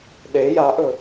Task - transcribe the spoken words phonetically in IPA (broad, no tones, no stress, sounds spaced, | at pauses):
ɗ e j a ʔ ɵ